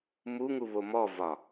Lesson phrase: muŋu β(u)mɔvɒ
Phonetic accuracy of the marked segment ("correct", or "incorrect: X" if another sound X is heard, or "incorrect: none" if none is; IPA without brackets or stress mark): incorrect: o